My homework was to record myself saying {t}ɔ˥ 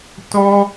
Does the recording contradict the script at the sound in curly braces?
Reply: no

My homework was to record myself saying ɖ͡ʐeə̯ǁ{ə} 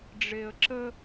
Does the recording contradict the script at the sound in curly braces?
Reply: no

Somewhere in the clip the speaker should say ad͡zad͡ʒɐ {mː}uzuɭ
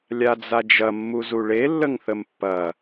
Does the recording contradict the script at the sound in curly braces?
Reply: no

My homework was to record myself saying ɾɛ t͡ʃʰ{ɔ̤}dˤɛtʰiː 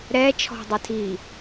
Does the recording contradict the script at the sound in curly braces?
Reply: no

